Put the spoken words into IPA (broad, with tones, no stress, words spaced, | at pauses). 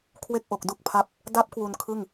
kʰwe˥˩k̚ʔo˨˩k̚du˥˩k̚pʰa˦˥p̚ | da˦˥p̚ kwu˧nkʰɯ˥˩ŋ